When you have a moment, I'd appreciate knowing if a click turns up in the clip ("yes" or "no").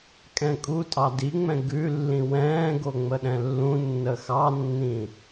no